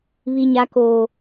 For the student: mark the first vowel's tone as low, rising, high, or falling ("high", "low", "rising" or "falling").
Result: high